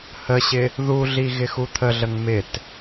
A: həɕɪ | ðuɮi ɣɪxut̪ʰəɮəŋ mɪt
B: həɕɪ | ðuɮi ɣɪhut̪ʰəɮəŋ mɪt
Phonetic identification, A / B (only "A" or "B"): A